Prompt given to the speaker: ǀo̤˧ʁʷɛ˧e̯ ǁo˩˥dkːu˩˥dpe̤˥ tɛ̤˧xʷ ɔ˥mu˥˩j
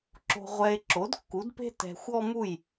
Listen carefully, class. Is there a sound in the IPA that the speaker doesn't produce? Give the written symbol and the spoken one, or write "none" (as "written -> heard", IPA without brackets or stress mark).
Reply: ǀ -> ǁ